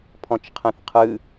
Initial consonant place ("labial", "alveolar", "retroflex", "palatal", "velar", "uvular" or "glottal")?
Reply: labial